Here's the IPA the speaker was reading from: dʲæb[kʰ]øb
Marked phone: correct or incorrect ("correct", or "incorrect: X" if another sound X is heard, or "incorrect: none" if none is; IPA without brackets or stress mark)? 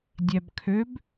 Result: correct